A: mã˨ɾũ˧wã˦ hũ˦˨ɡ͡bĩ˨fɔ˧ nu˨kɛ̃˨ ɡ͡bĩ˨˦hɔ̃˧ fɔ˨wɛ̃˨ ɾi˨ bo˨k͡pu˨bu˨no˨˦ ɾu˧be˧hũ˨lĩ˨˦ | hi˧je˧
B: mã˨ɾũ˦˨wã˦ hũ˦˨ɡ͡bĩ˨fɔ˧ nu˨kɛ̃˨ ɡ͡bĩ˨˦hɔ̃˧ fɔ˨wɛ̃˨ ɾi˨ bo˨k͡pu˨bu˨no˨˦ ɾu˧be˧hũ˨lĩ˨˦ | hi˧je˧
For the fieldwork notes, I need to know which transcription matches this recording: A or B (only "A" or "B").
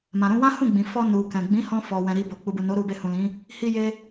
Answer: A